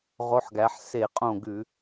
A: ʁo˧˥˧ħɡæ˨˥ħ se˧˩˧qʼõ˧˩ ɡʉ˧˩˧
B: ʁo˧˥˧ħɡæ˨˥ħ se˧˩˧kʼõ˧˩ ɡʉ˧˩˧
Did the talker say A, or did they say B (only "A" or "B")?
A